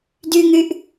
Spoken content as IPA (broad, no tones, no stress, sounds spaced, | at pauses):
d y ŋ y ʔ